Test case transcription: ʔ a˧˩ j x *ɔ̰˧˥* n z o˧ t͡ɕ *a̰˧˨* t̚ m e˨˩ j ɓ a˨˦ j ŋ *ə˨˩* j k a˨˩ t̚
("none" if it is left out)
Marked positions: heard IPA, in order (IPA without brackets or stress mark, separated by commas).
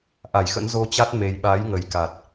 ə̰˧˥, a˦˥, ə˨˩